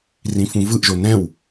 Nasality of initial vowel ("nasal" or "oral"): nasal